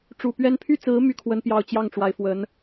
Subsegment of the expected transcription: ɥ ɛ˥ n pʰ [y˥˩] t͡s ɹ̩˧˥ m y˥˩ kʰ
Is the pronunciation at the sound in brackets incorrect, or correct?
correct